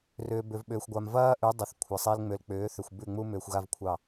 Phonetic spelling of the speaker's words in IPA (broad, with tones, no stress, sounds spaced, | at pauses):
r ʏː˨ b ʏ˨ v ɓ ʏː˨ xʷ ɡʷ a˨ m v ɐː˦ ʔ ʉ˨˦ dˤ ɐ˨ θ kʷʰ ɐ˨ sˤ e˦ l ŋ͡m ʏ˨ l k͡p ʏː˨˦ θ ʏ˨ xʷ b ʉ˦˨ ŋ͡m u˦ m ʏː˨ xʷ ɣ a˦ v kʷʰ ɑ˦˨